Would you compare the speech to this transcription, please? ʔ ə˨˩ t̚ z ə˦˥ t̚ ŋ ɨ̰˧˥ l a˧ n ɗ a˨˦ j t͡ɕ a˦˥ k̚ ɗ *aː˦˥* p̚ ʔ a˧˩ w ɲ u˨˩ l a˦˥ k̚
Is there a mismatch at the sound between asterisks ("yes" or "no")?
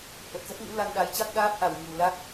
no